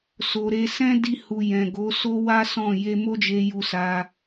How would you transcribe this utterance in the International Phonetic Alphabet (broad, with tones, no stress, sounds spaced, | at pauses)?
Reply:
s o˨ ɾ e˧ s ɛ̃˦ d i˧ h u˨ j ɛ̃˨ ɡ o˨˦ s o˦ w a˦ s ɔ̃˦˨ j e˧ m o˦ d͡ʒ e˧ j u˧ s a˧